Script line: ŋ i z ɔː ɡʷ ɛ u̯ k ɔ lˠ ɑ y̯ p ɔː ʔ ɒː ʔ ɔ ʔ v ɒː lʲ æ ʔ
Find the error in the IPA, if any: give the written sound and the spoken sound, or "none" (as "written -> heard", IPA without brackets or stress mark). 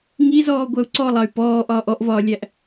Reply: k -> ǀ